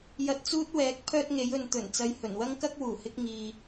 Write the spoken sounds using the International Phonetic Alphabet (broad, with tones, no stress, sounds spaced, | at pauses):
j ɐ˧ t̚ t͡s uː˥ t̚ w ɛː˨˥ k̚ pʰ œː˥ t̚ ŋ e˨˥ j ɵ˧ n t̪ ɵ˨˩ n t͡s ɐ˧ j h ɵ˨˩ n w ɐ˥ ŋ k ɐ˥ k̚ w uː˨˩ h ɪ˥ k̚ ŋ iː˧